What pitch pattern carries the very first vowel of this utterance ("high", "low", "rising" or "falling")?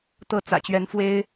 falling